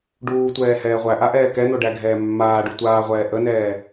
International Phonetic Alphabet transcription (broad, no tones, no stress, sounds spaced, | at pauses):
ɖ uː tʷ ɛː h ɛː ʁʷ æ ʔ a ʔ ɛː k ɛ n̪ o ɖ æ ɡʱ ɛː mː aː ɖ u tʷ aː ʁʷ ɛː ʔ ə n ɛː